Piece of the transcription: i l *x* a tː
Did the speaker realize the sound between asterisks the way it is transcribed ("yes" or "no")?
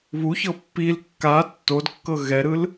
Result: no